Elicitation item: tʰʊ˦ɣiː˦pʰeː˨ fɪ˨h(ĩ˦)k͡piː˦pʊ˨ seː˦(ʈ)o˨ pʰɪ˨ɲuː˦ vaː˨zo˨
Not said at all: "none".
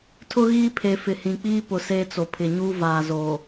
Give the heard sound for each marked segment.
ĩ˨, t͡s

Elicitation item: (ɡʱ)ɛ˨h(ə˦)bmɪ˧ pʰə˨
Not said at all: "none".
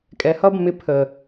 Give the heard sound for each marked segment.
kʼ, ʌ˦

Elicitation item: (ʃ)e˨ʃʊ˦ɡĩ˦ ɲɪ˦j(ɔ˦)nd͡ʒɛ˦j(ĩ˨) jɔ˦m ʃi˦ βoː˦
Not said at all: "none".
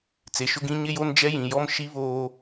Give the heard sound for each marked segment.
t͡s, o˦, ĩ˨

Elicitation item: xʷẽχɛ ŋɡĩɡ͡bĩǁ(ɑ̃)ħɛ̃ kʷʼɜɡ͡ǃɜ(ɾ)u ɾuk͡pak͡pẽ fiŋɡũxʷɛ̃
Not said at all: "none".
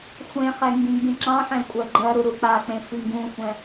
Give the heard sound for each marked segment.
ɑ̃, ɾ

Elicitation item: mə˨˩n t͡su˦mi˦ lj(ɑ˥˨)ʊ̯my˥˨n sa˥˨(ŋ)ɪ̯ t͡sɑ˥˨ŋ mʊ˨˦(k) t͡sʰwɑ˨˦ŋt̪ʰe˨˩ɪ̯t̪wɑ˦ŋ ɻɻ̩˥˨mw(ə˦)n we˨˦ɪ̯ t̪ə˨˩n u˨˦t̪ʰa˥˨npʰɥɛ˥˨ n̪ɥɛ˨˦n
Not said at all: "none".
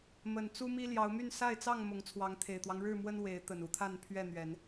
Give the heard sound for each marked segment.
ɑ˨˦, none, ŋ, ə˦

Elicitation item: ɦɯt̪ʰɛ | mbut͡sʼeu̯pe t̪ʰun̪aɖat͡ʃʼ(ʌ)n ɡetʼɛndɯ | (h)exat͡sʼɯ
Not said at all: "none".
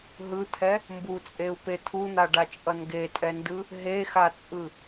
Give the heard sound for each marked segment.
ʌ, ɦ

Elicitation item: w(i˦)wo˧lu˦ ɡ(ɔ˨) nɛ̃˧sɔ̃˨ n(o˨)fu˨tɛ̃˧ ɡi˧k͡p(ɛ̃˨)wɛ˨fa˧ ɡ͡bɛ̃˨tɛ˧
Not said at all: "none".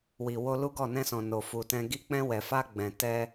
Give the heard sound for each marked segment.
i˨, ɔ˦˨, o˨, ɛ̃˧

